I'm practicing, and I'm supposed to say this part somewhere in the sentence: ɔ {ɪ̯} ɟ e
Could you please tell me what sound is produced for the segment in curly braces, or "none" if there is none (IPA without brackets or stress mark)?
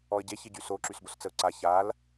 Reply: ə̯